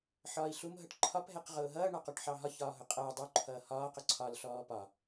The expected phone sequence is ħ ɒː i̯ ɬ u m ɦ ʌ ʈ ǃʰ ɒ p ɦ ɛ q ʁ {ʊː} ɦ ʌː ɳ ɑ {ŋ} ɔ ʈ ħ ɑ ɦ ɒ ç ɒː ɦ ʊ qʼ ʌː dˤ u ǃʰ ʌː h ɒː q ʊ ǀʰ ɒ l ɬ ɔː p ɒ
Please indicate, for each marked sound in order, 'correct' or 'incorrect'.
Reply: correct, incorrect: q

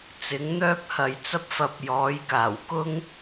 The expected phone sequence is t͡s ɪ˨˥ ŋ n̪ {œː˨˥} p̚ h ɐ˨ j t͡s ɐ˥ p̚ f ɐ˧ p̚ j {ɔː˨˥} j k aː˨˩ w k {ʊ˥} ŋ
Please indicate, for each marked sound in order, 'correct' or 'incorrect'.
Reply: incorrect: œː˥, correct, correct

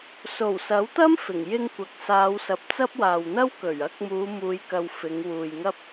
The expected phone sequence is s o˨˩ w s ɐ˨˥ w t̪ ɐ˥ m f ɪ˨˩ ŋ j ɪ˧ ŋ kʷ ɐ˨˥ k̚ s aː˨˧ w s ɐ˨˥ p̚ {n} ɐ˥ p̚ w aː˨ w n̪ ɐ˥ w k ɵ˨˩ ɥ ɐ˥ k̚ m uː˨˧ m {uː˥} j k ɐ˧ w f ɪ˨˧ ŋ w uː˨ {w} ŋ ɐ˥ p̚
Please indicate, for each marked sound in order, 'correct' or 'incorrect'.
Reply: incorrect: t͡s, incorrect: uː˨˧, incorrect: j

